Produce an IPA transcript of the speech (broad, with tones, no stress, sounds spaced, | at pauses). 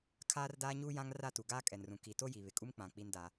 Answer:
kʰ aː˦ r d aː˦ ɲ uː˦ j ã˦ ŋ r a˦˨ t u˨ ɡ aː˦ kʼ ɛ˨ n r ũ˨ k i˨ t o˦ j i˨ β ɪ˨ kʼ u˦ m k͡p ã˨ k͡p i˦ n d a˦